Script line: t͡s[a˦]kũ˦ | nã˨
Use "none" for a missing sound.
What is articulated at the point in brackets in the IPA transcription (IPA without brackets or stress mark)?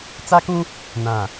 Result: a˦